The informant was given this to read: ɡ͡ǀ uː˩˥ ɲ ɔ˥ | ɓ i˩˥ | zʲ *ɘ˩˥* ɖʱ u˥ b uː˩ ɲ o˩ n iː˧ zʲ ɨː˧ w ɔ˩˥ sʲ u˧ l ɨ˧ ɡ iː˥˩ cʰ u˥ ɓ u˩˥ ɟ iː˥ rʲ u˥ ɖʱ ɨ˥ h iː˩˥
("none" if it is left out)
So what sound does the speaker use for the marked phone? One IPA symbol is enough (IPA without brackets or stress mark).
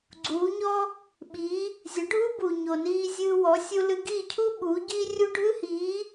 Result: ɘ˩˥